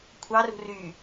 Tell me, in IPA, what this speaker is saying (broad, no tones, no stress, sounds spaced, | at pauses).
kʷʰ ɑ r ṳ r y